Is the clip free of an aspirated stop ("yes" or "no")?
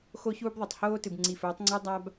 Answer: yes